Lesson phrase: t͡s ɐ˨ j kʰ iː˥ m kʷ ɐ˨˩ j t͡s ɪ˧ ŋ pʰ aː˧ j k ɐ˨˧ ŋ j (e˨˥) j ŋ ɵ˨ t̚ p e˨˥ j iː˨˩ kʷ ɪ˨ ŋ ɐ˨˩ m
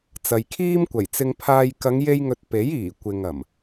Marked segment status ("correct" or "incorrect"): incorrect